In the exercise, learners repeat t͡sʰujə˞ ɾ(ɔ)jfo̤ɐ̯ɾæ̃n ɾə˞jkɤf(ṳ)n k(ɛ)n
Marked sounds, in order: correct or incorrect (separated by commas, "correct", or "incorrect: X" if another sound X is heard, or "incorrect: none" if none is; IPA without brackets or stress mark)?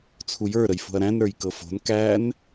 incorrect: ə, incorrect: o̤, incorrect: æ